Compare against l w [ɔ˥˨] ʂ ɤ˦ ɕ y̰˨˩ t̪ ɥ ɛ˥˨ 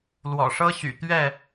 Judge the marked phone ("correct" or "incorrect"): incorrect